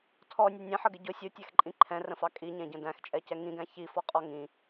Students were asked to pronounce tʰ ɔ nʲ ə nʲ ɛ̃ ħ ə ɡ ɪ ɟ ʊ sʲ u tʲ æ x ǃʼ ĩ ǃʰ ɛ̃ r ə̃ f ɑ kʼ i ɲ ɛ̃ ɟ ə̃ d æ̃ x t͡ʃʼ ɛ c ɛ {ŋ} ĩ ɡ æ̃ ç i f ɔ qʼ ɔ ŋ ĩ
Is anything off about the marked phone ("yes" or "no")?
no